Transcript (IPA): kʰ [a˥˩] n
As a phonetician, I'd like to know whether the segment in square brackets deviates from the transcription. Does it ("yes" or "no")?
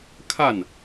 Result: no